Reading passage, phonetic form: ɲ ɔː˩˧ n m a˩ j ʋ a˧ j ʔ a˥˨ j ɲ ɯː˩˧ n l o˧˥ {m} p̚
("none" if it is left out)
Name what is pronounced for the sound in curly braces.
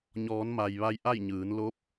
none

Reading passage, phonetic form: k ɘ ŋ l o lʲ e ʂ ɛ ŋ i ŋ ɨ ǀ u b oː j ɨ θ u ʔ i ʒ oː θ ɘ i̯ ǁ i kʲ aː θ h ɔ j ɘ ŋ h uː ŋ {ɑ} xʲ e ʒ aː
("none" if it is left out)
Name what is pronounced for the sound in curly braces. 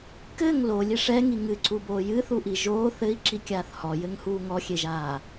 ɔ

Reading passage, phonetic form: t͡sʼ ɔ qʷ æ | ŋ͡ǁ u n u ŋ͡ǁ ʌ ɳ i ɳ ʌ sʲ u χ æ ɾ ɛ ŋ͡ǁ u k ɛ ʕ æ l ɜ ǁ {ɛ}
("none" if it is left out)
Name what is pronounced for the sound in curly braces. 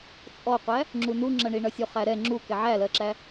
æ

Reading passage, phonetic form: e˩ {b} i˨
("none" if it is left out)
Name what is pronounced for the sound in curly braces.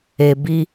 b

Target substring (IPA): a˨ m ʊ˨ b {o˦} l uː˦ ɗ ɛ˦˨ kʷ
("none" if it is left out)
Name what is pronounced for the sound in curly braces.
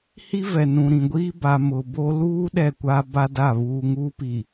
o˦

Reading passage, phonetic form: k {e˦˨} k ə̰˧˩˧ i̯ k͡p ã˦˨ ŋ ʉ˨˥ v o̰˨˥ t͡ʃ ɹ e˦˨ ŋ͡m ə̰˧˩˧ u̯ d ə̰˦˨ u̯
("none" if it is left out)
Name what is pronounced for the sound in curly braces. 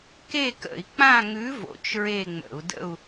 e˦˨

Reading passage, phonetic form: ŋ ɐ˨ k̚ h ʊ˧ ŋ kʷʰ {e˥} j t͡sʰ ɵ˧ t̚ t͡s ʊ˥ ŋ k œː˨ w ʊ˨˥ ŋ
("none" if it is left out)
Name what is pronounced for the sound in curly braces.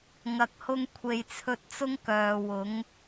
e˨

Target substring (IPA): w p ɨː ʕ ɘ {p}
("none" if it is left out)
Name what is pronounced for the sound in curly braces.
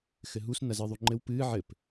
p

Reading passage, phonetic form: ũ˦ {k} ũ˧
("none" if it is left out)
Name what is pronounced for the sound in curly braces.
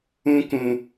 k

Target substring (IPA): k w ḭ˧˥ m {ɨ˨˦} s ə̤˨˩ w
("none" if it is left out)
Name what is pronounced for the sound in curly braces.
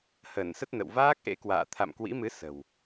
ɨ˨˦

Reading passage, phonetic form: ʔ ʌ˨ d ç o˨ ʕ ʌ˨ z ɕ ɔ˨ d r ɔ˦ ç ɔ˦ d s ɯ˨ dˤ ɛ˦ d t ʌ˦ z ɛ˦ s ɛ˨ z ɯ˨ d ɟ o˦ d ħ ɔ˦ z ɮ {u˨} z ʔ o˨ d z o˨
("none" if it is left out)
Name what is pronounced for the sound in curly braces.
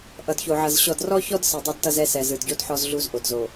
u˦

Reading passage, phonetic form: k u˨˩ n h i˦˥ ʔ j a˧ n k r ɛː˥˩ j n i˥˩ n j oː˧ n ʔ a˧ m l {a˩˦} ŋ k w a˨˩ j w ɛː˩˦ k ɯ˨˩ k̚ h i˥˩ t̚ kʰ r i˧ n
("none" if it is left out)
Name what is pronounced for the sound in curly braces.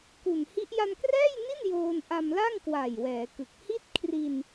a˥˩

